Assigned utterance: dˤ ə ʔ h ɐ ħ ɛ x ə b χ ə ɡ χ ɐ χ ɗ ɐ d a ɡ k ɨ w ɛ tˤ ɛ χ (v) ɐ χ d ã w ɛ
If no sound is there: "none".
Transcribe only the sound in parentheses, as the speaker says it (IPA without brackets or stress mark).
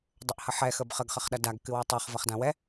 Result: v